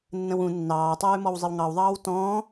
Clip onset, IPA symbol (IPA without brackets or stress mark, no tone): nː